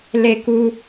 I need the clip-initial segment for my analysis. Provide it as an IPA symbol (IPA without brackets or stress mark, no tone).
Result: l